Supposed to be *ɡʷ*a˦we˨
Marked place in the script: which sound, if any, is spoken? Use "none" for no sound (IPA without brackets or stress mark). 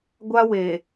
ɡʷ